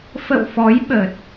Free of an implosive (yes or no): no